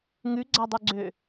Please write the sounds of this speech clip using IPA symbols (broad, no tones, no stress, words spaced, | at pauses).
ŋʉɡ͡ǀadˤʉɡ͡ǀø